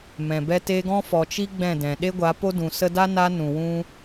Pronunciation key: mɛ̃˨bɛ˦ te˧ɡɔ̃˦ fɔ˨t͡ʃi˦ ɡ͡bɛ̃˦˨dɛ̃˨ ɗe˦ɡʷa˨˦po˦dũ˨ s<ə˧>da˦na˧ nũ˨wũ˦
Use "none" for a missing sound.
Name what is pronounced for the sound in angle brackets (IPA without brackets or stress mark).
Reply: ə˧